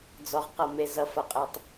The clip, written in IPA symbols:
d͡zɔ˩ʁqʌ˩me˩ zʌ˩fʌ˩qʼe˩tˤ

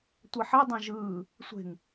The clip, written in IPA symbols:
tʷɐħɐ dˤãʒɯː | sʷe̤ŋ

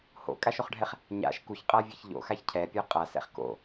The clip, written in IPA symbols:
ho̰kʼaʃoχɖʱɛχ | ɲa̰ʃ kuçqʼavʲɛç ʎo̰xaç cʰɛpʲɔ qʼasɛ̰χ ko̰

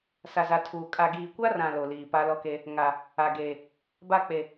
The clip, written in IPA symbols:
sa˨za˨ tʰuː˨ kʼa˨ɡiː˨kʷa˦rã˨ lo˨liː˨pa˦ lɔ˦ke˦ | ŋa˨ | a˨ɡeː˨ | ba˦˨k͡pe˨

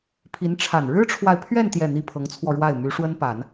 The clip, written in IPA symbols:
pʰi˧˥nʈ͡ʂʰa˨˩n ɻɻ̩˥ʈ͡ʂʰwa˨ɪ̯pʰɥɛ˥˧n t̪jɛ˥˩n̪i˥ pʰɤ˧˥ŋt͡sʰwɔ˧ ɻwa˥˩ɪ̯ my˧˥ʂwə˥npa˨˩˦n

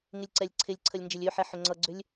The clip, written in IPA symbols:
ŋɪlʲǀɛlʲǀʰɪlʲǀʰəlʲ nd͡ʒɪlʲøħɛ ħʏŋ͡ǀʌɡ͡ǀʏlʲ

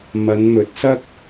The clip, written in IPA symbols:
mɐ˨˧nmɵ˨˥t̚sɐ˥k̚

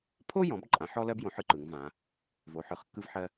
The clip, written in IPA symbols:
pʰo˦jɔ̃˩˧b ǃʼã˩˧ħɔ˦lɜ˦b jõ˩˧ħɯ˦ǃɯ˩˧ŋvã˩˧ | vo˩˧ħɯ˩˧χkːɯ˦vħɜ˦

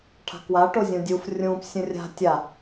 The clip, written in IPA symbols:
ʈʰa̤kwa ʈozʲũdʲuf rʲũp sʲũrʲa̤ tʲa

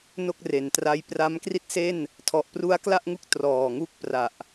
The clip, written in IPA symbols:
no˥˩k̚re˩˦ntra˦˥j pra˦˥mkri˥˩t̚se˥˩n | tʰɔ˨˩ʔpru˦˥a̯kla˥˩ʔŋu˦˥k̚ trɔː˨˩ŋu˥˩k̚pra˨˩ʔ

